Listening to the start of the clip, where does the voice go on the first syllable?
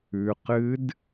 low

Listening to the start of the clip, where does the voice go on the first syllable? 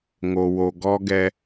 low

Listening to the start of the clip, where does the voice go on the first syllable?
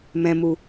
low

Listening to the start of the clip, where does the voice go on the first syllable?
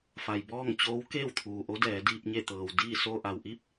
low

